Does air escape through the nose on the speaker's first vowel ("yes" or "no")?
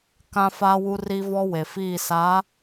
yes